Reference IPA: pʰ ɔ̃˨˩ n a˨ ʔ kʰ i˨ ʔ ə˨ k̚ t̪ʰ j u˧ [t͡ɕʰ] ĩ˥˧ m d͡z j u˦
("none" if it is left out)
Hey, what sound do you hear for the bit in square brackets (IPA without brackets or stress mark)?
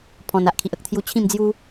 t͡ɕʰ